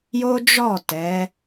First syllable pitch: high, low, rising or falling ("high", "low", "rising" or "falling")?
high